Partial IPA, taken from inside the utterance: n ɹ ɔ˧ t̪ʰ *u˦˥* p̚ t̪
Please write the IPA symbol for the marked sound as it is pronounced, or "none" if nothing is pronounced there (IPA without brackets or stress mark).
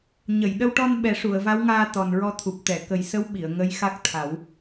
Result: u˨˩